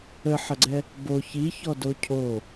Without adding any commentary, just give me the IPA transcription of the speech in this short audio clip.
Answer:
əħɐɡ͡ǀɛ | bo çiçɔdo cʰo

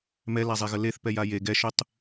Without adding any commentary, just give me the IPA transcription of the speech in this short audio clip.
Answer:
mɛlazˤeɣə leθpɛja je ɡɛʃʉtˤ

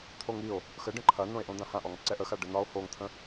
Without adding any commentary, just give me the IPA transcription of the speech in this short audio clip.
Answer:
t̪ʰoŋio̯ | xəɖə̃ ǃʰɐnõe̯ʔõd̪ã hãʔɔŋǀɛ ʔə xaɖənɒo̯ hoŋt̪ʰə̃

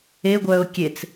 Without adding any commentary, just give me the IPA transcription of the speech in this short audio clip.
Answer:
eɡʷœːʊ̯ kʲet͡s

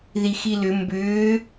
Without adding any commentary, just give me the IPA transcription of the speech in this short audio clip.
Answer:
ðixilʏ mbʏː

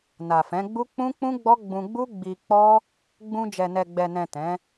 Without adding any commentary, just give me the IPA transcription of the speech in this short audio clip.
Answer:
na˨fɛ̃˨˦ɡ͡bu˦ k͡pũ˦k͡pũ˦ɡ͡bɔ˦ ɡ͡bũ˧ɡ͡bu˦ ɡ͡bi˧k͡pɔ˦ | ɡ͡bũ˧ d͡ʒɛ˨nɛ˨ɡ͡bɛ˨nɛ̃˨ tɛ̃˨˦

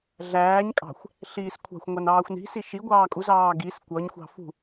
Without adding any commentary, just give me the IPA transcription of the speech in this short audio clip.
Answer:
ɮæːɲ kʼɑ̤xʷ | ɬiːskʷʰɑ̤xʷŋʷɑn ɑːxʷni̤si ʃiɡʷɑː kʼuzɑː ɡis kʷʌɲxʷɑ̤ fṳ

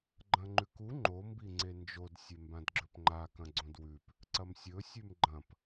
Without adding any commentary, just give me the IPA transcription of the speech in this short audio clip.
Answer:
ɡ͡ǃɐ̃ŋ͡ǃʉku ŋ͡ǃo mbiŋ͡ǀend͡ʒod sʲembãdɡ͡ǁɵpŋ͡ǃa kɐ̃ɡ͡ǀõdwʉp | ǀɐmsʲɵ sʲʉmɡ͡ǃɐ̃p

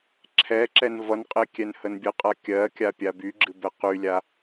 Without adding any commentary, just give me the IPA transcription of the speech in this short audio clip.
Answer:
ǁʰɛǁɛn vʌnqʼe kʲɛnhənbʲəqʼa kʲɜkʲa pʲabyɡ͡ǁɨ bɛqylʲa

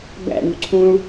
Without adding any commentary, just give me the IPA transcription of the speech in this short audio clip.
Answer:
bæ̰ɳṳ ǀʰũɭ

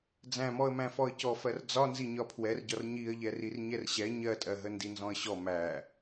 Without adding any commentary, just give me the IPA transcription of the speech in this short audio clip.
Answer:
d͡zæ̃mɔə̯mæ̃ fɔə̯cɔfɜr d͡zɒnzi ɲɒpʰwɛrɟɒr ɲiə̯ʎɛ rirɲɛrɕɛ ɲɜtʼɜɦə ndinzɔ̃ə̯ɕɔ mæ

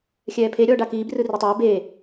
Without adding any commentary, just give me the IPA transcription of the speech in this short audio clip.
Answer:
xʲɛːpʰe ɾʲɔːɖakiːb rɯritˤɛː be

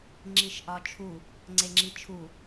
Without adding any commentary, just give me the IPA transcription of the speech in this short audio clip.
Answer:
ŋ͡ǁiʃʔɒt͡ʃʰu | ŋ͡ǀeŋ͡ǁit͡ʃʰu

